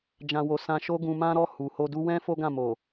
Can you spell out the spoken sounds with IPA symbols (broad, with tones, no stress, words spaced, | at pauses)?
d͡ʒã˨ wo˨ sã˧ʃo˦ɡũ˧ mã˦ɾɔ˦˨ hu˨ho˧du˦ wɛ̃˦ fo˦ɡã˦˨mo˨